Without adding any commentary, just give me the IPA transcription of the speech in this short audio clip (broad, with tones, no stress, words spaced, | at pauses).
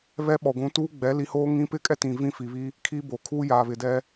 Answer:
βɛ˦ɓɔ˨ ɡʷũ˨˦ tuː˦ ɡ͡bɛ˨˦li˨˦hoː˦ ŋĩ˦ pɪ˦kʼɛ˦tĩ˨ vĩ˦fi˨βi˦ | kʰi˦bo˨ kʰuː˦jaː˨βɪ˨ dɛ˦